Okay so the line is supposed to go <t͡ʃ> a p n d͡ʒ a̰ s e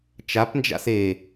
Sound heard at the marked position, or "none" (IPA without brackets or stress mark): t͡ʃ